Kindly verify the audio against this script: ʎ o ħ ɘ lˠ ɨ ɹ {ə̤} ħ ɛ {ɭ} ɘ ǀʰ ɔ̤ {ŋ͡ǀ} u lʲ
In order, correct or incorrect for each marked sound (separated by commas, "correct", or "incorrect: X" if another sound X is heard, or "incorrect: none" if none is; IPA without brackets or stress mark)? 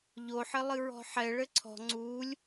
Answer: incorrect: ɔ̤, correct, correct